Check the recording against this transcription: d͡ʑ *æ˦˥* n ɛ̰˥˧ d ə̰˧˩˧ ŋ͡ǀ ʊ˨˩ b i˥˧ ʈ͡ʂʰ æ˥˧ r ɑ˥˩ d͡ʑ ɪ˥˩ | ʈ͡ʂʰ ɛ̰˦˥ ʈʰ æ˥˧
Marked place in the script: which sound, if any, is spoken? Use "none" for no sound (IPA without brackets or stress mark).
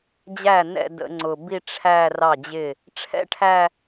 æ˥˩